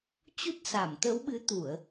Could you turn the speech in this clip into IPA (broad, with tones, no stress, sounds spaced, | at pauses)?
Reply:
t͡ɕ u˦˥ t̚ s a˧˩ m t̪ ə˨˦ w ɓ ɨ˨˦ t̪ u˧˩˨ ə̯